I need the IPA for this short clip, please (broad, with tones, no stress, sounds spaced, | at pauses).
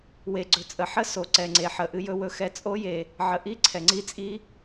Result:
w e˨ ɡ͡ǀ ɵ˨ t͡sʼ ə˨ ħ ə˦˥ s o˨ ǀ ɛ˨ ŋ͡ǀ e˨ ħ ə˨ ʔ ɨ˦˥ j ɵ˦˥ w ɵ˦˥ x ɛ˦˥ t͡sʼ o˦˥ j e˨ | ʕ ə˨ ʔ i˦˥ ǀʰ ɛ˨ ŋ͡ǀ i˦˥ t͡sʼ i˦˥